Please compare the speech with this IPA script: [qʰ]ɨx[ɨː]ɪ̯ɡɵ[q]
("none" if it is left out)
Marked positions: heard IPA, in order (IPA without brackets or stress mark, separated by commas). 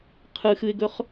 qʰ, ɨ, χ